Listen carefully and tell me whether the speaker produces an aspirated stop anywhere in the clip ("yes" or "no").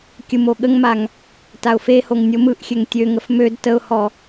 no